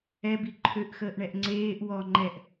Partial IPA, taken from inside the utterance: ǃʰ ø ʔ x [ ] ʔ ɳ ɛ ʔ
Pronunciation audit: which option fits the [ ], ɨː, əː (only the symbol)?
əː